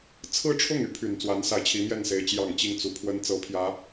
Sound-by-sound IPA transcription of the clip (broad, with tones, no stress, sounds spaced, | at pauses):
t͡sʰ ɹ̩˥˧ ʈ͡ʂʰ ʊ˥˩ ŋ y˧˥ pʰ y˨˩ n t͡s w a˧˥ n s a˧˥ ɪ̯ t͡ɕʰ i˧˥ m j ɛ˥˩ n s e˧˥ ɪ̯ t͡ɕ j ɑ˨˩ ŋ t͡ɕ i˥˩ ŋ t͡s u˨˩ pʰ w ə˥ n t͡s ɤ˧˥ pʰ j ä˧˥